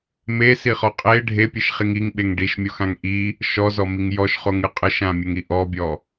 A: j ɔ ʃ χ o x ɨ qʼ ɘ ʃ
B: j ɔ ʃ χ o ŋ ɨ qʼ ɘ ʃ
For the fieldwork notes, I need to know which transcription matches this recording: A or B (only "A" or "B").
B